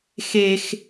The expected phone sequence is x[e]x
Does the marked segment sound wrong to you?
no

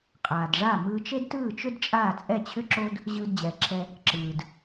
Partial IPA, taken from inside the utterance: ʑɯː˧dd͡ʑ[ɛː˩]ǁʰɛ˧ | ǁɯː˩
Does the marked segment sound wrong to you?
no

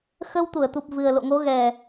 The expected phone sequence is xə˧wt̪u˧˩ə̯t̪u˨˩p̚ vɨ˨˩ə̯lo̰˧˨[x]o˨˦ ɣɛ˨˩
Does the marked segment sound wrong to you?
yes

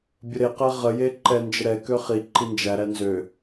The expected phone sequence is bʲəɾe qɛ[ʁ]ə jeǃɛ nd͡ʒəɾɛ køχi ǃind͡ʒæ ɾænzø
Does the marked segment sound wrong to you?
no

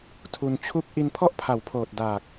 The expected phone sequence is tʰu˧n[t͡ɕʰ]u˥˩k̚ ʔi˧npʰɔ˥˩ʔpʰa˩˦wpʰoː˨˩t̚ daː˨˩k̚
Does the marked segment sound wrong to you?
no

